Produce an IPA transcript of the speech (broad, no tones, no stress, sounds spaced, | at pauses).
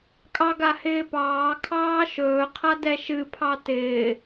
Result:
kʼ ɑ ɡ a h ɪː p ɑː kʰ ɑː ʃ ɵː qʰ a d ɛ ʃ ɨ pʰ ɑ t ɪː